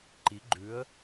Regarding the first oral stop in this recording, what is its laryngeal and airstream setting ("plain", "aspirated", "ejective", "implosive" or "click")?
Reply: click